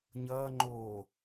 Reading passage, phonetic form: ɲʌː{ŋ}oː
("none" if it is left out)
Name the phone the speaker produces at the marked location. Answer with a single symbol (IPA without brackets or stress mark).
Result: ŋ͡ǃ